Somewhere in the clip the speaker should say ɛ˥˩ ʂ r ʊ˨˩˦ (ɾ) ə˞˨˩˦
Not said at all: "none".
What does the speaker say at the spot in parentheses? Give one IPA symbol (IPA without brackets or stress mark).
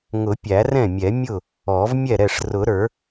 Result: ɾ